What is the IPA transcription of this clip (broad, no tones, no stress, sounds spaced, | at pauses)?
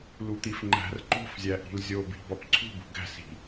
l u t̪ i f ŋ͡ǃ æ̤ r ǃ o̤ f zʲ æ ʔ i̤ l zʲ o b i̤ b ɒ p ǀʰ ṳ b ṳ ɡ æ̤ s i̤